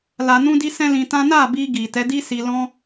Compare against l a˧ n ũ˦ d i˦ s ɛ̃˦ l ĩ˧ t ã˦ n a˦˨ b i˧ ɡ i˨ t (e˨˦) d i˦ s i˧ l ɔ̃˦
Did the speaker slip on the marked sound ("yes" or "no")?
yes